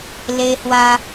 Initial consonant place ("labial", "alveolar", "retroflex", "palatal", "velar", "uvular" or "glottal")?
alveolar